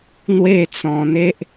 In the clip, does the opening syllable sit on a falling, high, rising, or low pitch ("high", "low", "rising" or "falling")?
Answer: falling